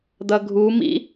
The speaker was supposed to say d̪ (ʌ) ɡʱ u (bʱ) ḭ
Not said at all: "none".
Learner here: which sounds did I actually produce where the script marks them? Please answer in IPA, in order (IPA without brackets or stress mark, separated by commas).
ʌ, m